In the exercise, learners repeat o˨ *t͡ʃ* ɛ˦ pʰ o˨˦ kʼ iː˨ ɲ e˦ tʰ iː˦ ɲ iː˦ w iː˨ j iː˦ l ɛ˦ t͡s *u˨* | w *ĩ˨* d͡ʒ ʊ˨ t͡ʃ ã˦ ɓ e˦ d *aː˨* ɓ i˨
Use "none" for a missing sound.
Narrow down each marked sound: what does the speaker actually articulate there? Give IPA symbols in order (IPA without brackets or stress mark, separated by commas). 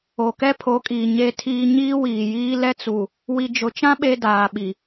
k, u˨, i˨, aː˨